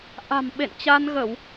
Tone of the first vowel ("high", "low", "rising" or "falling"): low